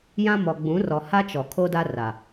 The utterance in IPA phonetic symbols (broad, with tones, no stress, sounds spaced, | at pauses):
j ã˦ m ɔ˨ ɡ͡b ũ˨˦ r ɔ˨ h a˦ t͡ʃ ɔ˨ kʰ o˦ d a˦ r a˨